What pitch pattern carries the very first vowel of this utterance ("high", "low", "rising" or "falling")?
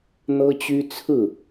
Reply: high